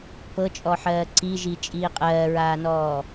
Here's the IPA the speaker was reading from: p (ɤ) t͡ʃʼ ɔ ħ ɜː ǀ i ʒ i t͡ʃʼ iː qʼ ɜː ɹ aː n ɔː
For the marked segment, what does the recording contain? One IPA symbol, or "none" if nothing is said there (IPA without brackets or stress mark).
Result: ɤ